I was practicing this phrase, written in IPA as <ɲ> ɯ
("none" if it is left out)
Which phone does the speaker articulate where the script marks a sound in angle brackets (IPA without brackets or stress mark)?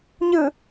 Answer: ɲ